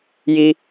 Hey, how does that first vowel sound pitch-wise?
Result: high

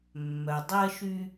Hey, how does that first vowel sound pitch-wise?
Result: low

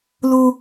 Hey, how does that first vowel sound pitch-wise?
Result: high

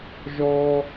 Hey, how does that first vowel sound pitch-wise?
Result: low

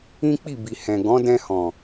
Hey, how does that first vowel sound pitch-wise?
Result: high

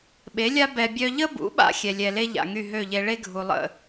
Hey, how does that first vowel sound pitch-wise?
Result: rising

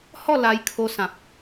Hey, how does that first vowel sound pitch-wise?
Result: falling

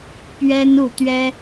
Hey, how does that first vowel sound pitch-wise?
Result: high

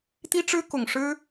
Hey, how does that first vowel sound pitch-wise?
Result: high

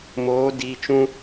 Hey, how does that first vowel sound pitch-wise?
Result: rising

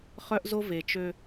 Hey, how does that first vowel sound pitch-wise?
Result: high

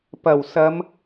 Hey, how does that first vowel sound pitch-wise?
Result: low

